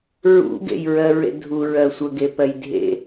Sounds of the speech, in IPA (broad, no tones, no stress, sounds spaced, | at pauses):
ɹ ṵ ɡ ḛ j ɹ ɜ ɹ ḛ dʱ u ɹ ɜ sʷ ə ɡ e p ɜ j dʱ ḛ